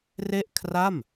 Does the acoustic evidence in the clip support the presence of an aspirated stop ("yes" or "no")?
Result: yes